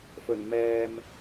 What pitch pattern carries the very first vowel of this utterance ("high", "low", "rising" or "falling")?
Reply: low